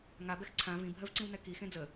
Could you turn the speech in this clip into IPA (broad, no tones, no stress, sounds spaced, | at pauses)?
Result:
ŋ a b ɛ x ǀʰ ã v ĩ bʱ ɜ v ǀ ĩ w n ɛ k i x ẽ d͡z ə